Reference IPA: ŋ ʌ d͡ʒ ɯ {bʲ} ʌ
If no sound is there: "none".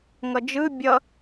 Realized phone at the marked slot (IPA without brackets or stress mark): bʲ